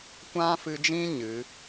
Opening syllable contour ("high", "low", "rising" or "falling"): high